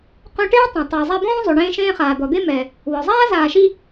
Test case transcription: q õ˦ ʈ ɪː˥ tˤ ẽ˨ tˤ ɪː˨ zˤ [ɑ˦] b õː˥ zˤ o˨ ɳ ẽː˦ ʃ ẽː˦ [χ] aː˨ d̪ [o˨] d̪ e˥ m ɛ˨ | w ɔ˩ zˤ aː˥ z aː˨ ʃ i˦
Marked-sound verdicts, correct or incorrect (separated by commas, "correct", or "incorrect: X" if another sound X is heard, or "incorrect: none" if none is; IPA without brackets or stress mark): incorrect: a˦, correct, incorrect: ɔ˨